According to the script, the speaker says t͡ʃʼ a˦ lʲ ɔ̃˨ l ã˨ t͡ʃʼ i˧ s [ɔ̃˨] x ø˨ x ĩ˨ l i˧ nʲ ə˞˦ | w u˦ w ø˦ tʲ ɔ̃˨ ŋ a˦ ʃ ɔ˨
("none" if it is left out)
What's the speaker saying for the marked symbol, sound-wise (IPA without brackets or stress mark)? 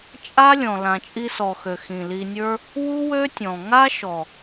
ɔ˨